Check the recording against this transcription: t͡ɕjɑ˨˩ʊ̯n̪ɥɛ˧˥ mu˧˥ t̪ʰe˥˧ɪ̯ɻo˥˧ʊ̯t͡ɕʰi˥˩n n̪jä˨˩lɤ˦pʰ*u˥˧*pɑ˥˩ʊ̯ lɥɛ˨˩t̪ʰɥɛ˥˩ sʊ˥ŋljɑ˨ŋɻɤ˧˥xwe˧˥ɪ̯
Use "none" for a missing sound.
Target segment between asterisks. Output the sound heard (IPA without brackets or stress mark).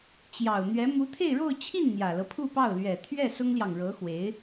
u˥˧